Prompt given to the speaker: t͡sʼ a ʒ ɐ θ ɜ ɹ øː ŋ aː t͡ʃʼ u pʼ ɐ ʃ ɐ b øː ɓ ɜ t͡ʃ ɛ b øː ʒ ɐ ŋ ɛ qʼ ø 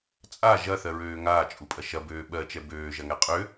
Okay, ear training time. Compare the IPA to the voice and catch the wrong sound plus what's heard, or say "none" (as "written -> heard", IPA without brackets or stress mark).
none